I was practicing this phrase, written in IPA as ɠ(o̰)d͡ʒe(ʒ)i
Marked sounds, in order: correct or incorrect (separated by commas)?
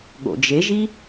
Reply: correct, correct